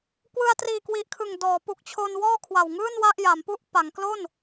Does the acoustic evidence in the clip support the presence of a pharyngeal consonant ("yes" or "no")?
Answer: no